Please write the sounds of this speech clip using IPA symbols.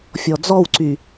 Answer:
fʲ ɔ d͡z ɔ w ǀ y

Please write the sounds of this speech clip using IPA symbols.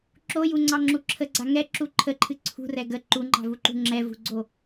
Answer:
ǁ o j u ŋ͡ǀ ɑ ŋ͡ǁ u ǁʰ ə ɡ͡ǀ a ŋ ɛ ǁ u ǃʰ ə ǃʰ ɨ ǀʰ ṳ r ɛ ɡ ə ǃ u ŋ͡ǃ ɑ̤ v u ǃ ṳ ŋ͡ǁ ɛ v ṳ ɡ͡ǀ o

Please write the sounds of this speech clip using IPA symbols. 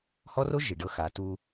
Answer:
h ɔ˦ r o˦ ʒ i˨ ɖ ɤ˦ x a˨˦ t uː˦

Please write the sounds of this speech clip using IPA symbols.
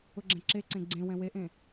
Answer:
ʊ ɡ͡ǁ ɛ̃ ǁ e ǀ ẽ ɡ͡ǀ ẽ w ɛ̃ w e ʔ ẽ

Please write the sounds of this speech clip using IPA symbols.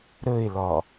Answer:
ɾ ə e̯ l ɒ

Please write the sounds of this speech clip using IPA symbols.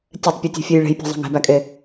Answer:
tʲ ɛ tˤ pʲ e tʲ e̤ fʲ e j ɭ e̤ j pʲ e̤ zˤ a̤ ŋ e̤ b æ kʼ e

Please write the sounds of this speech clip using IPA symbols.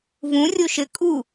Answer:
v ũ rʲ o ʃ ɘ kʼ u

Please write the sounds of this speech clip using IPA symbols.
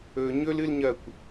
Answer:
ɵ ɲ ɵ l ɨ l ɲ ɐ kʷ

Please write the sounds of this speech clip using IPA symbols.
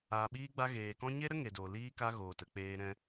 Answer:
aː˧ ɓ iː˦ ɡ͡b a˦ ɣ eː˧ k ɔ̃˦ ɲ e˦ ɾ ə˦ ŋ e˧ d oː˧ l iː˦ k a˦ ɣ oː˧ t ə˨˦ k͡p eː˦ ɾ ɛ̃˦

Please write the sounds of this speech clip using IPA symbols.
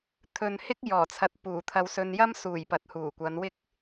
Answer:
t̪ʰ ɵ˨ n h ɪ˥ k̚ j ɔː˨˩ t͡sʰ ɐ˨˥ t̚ p uː˨˩ t̪ʰ ɐ˧ w s ɵ˧ n j ɐ˥ m s uː˨˩ j p ɐ˨˥ t̚ h uː˨˩ kʷ ɐ˨˧ n w ɪ˥ k̚

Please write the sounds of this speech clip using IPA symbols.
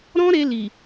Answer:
ɾ ɔ̃˦ ɾ e˧ l i˨

